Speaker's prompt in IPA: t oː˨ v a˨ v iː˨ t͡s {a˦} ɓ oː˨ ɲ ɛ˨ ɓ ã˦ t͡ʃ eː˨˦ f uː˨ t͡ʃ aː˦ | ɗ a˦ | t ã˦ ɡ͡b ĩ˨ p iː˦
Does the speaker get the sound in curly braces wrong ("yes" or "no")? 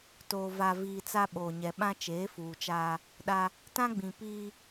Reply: no